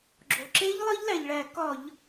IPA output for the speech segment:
ɡ͡ǁo˩ǁe˦˥ʎ lˠi˦˥ʎlæ˩ʎɭæ˧˩˧ kɒ˧˩˧ʎ

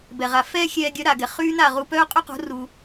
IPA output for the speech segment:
bɛ˩ʁa˩fɛː˥ xʲɛː˧ɡʲœ˩˥ ɾa˩ɡɛ˩ χyː˥na˥˩ʁu˧pœː˥ qʼy˥qo̤˩˥ ru˩

